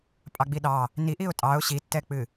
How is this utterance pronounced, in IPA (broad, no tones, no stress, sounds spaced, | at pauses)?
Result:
pʼ ɑ ɡ͡b i ɗ ɑ | n i ʔ i ʊ̯ tʼ ɑ ʊ̯ ɕ i tː ɛ k͡p ɨ